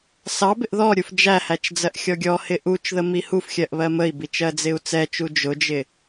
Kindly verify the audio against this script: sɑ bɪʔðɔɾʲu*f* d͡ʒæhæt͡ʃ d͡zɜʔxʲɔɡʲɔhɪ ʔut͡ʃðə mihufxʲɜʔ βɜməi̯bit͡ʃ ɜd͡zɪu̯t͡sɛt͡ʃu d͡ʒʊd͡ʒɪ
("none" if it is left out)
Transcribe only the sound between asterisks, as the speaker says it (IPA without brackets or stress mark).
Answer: f